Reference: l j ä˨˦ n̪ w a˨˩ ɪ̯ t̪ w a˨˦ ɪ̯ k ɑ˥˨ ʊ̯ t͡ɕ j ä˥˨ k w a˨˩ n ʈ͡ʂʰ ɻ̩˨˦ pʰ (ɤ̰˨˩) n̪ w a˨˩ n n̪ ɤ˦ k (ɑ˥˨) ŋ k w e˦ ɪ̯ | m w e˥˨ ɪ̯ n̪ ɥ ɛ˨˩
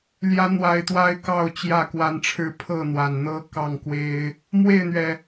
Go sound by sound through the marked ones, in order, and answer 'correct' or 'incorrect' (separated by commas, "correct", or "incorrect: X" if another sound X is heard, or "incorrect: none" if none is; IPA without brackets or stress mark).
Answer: incorrect: ɤ˥˨, correct